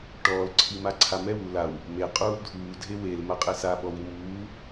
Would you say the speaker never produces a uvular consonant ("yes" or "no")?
no